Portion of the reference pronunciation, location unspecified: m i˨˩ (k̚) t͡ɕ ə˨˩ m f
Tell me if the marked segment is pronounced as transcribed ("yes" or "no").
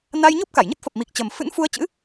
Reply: yes